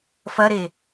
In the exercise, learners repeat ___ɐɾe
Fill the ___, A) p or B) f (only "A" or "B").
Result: B